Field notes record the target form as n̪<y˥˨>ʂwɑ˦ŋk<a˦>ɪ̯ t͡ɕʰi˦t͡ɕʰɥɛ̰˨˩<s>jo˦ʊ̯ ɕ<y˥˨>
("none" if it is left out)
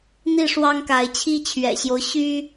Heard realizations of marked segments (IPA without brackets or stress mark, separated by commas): i˥˨, a˨˦, ɕ, y˦